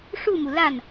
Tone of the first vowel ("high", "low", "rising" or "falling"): falling